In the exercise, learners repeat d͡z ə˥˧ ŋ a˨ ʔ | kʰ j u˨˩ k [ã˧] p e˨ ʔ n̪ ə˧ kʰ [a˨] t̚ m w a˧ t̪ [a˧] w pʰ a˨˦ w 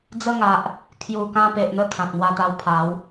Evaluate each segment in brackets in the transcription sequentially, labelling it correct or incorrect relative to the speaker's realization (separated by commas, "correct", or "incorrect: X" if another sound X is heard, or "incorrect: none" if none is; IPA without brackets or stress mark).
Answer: correct, incorrect: ã˨, correct